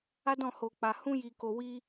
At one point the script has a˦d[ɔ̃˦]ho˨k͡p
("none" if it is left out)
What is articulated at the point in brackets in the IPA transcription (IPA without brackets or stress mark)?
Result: ɔ̃˦˨